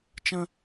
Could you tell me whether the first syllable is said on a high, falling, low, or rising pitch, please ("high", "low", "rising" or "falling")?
high